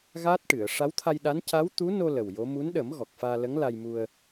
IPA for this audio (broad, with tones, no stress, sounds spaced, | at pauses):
ɣ aː˦˥ t̚ ʈ ɨ˨˩˨ ə̯ ʂ a˧˥ w t̪ʰ a˧ j ɗ a˧˥ n c a˧˥ w t̪ u˧˥ n o˧ l ə˨˩ w j o˧˥ m u˧˥ n ɗ ə˨˩˦ m ɣ ɔ˨˩ k̚ f aː˧ l ə˧˥ ŋ l a˧ j m u˧ ə̯